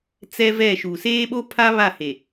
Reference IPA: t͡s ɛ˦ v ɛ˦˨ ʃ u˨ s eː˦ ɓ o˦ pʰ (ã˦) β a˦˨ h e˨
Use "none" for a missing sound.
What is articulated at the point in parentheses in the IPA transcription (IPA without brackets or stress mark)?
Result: a˦